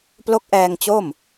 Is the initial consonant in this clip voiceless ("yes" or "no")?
yes